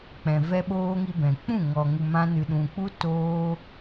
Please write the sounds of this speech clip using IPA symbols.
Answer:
k͡p ɛ̃˨ v ɛ˦ ɓ oː˦ ŋ i˧ b ɛ̃˨ k͡p ũ˦˨ ŋ ɔ˨ ŋ u˨ m ã˧ n ɨ˨ ɗ ũ˨ k͡p u˧ t oː˧

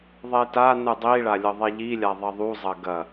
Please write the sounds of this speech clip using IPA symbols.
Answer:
ðˤ e t a n ɯ dˤ i ɭ a lʲ ɤ ðˤ e ʎ i lʲ a ðˤ ɐ ðˤ u zˤ ɐ ɡ ɐ

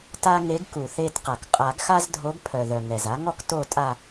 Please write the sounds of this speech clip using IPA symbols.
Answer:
t a˦ ŋ e˨˥ ɡ k u˩ θ e˦˨ t q a˩ k qʼ a˨˩˦ ɡ x a˦ z dʱ o˨˥ ɡ pʰ œ˩ ð œ˩ ŋ ɛ˩ z a˨˥ ŋ ɔ˦ k t o˦˨ tʼ a˦˨

